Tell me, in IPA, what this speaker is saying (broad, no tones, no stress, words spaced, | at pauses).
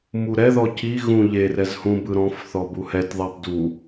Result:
muɾɛðɔ ciɣũ ʎerɛzhũ bɯɾɔ̃fθɔ buhɛtðˤab du